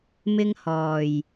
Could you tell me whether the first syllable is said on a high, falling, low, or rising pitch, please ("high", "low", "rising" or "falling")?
high